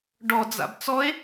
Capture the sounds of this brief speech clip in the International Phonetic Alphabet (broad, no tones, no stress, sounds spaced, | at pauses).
ɖ ɔ d͡z a̰ b t͡s ɔ e̯